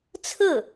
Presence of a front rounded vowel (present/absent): absent